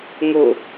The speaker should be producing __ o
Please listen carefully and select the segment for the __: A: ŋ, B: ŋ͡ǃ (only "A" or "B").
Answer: A